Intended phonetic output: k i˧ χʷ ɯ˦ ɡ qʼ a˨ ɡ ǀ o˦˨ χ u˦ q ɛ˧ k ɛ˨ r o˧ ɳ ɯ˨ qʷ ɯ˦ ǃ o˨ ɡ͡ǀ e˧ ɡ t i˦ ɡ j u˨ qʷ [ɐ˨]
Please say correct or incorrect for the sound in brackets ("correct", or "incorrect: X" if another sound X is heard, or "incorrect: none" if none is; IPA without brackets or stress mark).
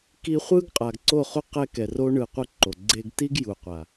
incorrect: a˨